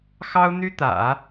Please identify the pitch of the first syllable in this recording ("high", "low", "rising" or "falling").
high